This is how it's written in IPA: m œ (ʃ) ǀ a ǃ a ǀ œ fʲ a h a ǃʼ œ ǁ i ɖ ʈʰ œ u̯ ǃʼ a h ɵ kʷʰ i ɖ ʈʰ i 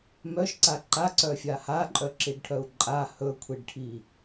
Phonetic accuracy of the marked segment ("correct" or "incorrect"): correct